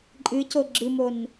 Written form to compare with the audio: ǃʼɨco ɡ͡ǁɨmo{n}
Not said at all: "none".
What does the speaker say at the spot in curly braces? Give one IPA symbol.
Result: n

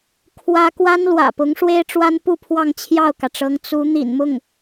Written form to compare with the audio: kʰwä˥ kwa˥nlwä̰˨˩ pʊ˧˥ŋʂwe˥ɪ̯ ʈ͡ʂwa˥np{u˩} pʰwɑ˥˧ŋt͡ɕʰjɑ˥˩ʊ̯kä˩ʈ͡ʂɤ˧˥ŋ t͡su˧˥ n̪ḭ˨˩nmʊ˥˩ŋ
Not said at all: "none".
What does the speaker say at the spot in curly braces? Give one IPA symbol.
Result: u˥˧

